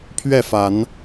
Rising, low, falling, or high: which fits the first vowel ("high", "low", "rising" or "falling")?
falling